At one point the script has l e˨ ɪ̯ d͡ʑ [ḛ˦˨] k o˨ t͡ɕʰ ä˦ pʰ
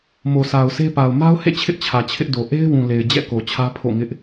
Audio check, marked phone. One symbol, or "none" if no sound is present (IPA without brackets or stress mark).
ɛ̰˦˨